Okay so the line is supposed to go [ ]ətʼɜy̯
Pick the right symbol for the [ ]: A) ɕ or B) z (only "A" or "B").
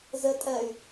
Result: B